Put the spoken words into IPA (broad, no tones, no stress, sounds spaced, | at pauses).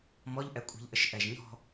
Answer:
m ɔ ʎ ʔ ɛ kʷʼ i̤ ʎ ʔ ə ʃ ʔ ɛ ʒ ɲ ɔ̤